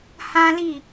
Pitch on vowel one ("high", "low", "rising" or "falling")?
high